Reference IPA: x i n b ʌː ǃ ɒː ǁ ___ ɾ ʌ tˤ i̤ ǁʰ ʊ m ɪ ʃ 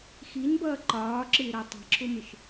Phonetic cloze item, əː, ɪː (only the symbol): ɪː